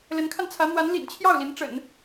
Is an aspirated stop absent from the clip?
no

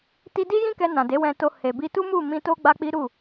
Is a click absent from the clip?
yes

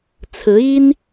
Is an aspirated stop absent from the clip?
no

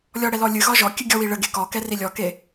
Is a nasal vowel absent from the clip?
yes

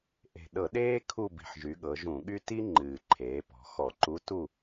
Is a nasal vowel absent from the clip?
no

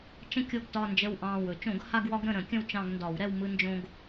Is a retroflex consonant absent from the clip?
yes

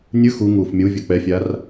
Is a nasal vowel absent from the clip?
yes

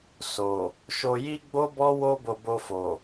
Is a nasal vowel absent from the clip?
yes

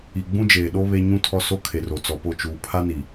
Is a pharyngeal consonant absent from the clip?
yes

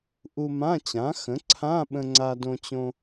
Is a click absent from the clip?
no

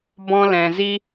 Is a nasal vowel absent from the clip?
no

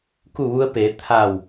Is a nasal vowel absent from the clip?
yes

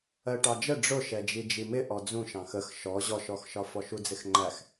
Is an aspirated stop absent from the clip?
yes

